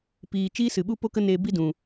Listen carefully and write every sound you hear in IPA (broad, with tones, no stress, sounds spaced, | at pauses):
p iː˨ t͡ʃ iː˦ s ɨ˨ ɓ u˦ p o˦ k ə˦ n eː˧ b i˦ d ũ˨